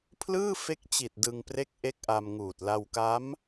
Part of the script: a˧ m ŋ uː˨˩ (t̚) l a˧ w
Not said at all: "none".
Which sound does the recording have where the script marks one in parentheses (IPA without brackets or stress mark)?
t̚